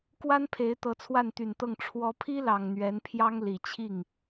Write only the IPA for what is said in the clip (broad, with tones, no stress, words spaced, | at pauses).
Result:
kwa˥npʰe˧˥ɪ̯ t̪ɤ˧˥t͡sʰwa˥˩nt̪y˨˩nt̪ɤ˥˩ŋ ʈ͡ʂʰwɔ˧˥pʰi˥lɑ˨˩ŋ n̪ɥɛ˧˥npʰjɑ˥ŋ li˨˩ t͡ɕʰi˥˩ŋ